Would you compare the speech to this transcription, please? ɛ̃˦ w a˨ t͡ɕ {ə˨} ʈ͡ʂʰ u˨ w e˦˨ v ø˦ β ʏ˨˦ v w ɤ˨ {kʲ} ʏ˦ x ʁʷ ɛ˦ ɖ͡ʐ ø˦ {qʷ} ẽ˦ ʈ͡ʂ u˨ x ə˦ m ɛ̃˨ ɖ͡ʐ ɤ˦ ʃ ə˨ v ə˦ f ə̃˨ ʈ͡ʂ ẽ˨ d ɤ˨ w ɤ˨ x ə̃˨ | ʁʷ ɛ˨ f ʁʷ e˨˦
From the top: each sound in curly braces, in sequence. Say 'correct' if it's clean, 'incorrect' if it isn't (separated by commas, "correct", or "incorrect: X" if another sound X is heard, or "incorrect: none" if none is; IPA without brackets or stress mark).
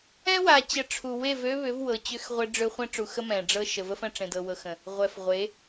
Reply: correct, incorrect: t͡ɕ, incorrect: χʷ